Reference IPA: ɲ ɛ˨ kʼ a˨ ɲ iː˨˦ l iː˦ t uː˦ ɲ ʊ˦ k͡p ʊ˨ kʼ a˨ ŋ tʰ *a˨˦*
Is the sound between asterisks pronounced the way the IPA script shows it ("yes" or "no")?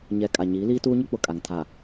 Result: no